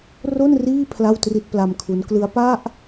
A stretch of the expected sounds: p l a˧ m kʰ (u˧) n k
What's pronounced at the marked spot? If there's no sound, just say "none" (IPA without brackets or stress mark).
u˦˥